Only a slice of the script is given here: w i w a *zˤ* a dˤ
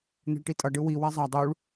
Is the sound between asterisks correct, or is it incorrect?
correct